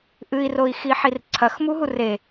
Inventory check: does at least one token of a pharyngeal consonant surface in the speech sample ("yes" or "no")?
yes